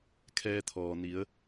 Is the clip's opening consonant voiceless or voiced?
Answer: voiceless